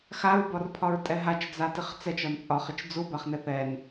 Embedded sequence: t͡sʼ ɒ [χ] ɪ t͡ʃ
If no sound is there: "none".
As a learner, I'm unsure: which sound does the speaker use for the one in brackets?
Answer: χ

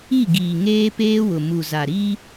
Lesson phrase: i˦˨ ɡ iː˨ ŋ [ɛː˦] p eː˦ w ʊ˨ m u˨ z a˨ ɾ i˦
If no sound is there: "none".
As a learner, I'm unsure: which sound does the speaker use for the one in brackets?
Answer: eː˦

